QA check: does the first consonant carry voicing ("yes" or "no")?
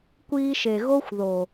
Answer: no